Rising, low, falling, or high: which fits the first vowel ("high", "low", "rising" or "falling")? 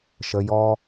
low